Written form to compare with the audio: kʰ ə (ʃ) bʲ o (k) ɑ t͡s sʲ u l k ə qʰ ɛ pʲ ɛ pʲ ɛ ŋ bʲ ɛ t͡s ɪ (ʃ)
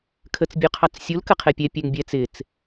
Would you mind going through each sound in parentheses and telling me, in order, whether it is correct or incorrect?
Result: incorrect, incorrect, incorrect

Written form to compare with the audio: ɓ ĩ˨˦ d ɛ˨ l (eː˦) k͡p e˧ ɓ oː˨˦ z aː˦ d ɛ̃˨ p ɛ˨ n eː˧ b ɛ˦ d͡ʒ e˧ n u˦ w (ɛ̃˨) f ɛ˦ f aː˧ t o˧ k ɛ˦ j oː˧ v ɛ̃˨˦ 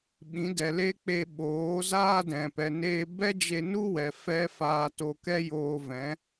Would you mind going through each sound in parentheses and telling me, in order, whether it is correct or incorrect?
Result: incorrect, incorrect

